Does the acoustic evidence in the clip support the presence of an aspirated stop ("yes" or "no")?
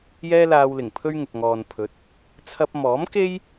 yes